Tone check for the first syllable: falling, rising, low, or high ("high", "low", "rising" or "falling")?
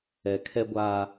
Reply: low